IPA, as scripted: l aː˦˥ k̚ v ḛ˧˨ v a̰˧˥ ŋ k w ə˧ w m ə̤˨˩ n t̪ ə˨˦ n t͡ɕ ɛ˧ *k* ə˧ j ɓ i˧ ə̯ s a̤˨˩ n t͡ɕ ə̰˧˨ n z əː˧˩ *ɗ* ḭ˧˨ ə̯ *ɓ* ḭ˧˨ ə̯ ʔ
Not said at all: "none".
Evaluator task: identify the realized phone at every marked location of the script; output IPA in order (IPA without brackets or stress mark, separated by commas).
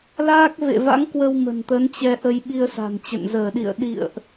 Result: ʔ, ɗ, ɗ